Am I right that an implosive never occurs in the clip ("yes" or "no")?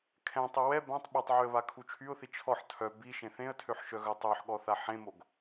no